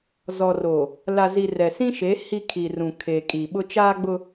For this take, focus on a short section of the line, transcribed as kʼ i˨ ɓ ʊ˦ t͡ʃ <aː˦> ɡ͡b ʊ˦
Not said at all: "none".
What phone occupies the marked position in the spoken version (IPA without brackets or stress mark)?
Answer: aː˦